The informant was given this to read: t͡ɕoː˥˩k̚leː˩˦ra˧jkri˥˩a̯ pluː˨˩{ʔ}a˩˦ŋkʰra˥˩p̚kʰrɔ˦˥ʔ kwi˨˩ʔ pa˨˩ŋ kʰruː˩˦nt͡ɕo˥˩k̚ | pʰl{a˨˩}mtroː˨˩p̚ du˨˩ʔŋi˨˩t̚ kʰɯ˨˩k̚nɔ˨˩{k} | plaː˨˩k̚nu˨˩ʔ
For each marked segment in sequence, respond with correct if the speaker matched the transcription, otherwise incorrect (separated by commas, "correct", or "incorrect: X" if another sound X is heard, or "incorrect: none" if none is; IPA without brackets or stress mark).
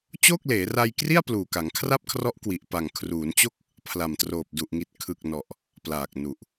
incorrect: k, correct, incorrect: ʔ